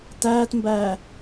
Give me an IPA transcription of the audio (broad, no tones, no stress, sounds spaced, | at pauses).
t æː t m b æː